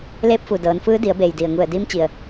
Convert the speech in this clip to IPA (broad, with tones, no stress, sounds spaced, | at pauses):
l eː˧ p̚ f u˩ d ɤː˩˧ n f ɯː˧˥ d i˩˧ ə̯ b eː˩ j d i˩ ə̯ ŋ u˧˩ ə̯ d iː˧˥ m t͡ɕ i˩ ə̯